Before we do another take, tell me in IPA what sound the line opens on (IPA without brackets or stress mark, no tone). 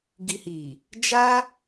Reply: ɡ